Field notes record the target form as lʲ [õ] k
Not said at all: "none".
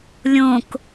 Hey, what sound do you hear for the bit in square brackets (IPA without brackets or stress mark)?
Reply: õ